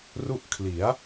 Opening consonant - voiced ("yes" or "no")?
yes